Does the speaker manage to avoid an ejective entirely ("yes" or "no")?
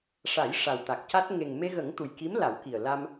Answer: yes